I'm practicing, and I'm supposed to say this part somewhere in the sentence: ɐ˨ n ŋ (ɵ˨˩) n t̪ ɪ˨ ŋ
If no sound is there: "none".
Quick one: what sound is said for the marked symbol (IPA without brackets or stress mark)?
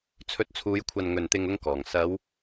ɵ˨˩